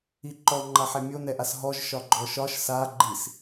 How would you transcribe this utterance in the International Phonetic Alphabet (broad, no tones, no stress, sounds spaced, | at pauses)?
i ǃ ɔ ŋ͡ǃ a ħ ɛ mʲ o n ɛ ʔ a s ɦ ɔ ʒ ʃ ɒ ɡ͡ǃ ɔ ʃ ɒ ʃ s a ɡ͡ǃ i s